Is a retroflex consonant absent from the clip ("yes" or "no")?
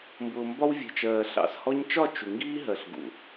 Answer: yes